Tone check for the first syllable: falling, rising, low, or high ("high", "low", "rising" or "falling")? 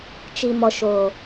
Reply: low